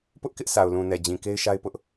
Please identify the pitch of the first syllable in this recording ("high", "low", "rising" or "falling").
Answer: high